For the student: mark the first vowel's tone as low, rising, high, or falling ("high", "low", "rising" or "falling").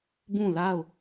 falling